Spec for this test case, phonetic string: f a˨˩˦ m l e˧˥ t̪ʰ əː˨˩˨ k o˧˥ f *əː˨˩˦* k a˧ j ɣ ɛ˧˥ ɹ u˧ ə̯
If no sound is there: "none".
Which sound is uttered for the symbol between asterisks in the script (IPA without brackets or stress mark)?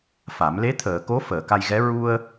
əː˨˩˨